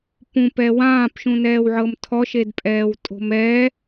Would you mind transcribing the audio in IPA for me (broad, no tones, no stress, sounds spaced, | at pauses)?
p ũ p ɛ w ãː p ʃ ũ n ɛː w ʕ ɤ m tʰ ɔ ʃ e d pʼ ɛː w tʼ o̤ m ɛ